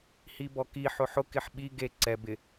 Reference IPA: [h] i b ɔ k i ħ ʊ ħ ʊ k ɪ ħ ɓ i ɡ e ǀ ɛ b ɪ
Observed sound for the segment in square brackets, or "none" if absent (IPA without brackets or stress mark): h